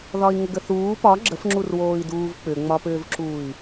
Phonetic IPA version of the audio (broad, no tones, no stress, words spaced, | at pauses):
ðɒi̯ŋəɡəθuː pɒ ɡ͡ǁəfŋ͡ǁurwoːi̯duːv k͡pʏŋ͡mɒpʏːvǁuːi̯